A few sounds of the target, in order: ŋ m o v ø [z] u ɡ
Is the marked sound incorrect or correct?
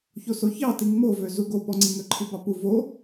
correct